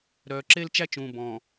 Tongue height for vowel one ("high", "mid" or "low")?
mid